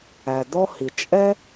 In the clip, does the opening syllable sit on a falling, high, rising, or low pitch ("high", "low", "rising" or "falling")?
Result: low